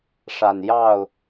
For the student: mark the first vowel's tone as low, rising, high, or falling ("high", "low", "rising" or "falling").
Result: low